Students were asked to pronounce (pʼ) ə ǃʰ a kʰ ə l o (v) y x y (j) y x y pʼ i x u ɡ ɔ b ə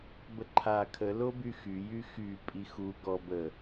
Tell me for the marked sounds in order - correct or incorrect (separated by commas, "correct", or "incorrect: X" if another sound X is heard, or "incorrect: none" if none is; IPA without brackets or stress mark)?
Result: incorrect: b, incorrect: b, correct